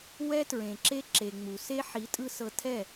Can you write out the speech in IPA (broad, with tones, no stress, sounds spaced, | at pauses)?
w ɛ˦ t ɹ ẽ˨ ǁ e˦ ǁ e˨ ŋ͡m u˨ s e˦ ħ i˨˦ tʼ ɯ˧ s ɤ˧ tʰ ɛ˦˨